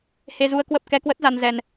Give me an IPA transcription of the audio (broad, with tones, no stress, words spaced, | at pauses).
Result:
he˧zu˧ə̯ kwə˦˥p̚ kɛ˧kwə˦˥t̚za˧nzɛ˧n